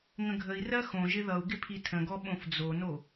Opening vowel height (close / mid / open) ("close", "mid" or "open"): mid